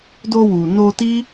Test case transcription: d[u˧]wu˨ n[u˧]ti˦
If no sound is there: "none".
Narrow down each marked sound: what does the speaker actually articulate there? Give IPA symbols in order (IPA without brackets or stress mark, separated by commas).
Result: o˧, o˧